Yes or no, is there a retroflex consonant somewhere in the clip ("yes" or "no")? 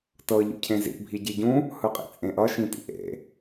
no